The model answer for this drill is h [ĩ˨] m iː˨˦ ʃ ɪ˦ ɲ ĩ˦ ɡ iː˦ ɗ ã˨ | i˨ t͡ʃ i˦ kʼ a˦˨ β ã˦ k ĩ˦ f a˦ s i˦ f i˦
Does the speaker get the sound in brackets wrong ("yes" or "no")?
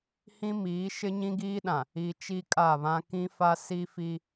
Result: yes